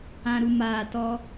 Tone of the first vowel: low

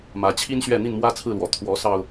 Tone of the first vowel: rising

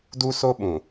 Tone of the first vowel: high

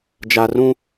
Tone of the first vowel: low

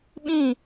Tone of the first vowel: falling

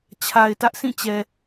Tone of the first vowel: low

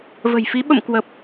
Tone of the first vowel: low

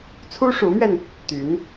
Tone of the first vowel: high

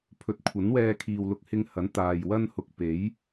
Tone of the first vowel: rising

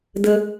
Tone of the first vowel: low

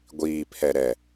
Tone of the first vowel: low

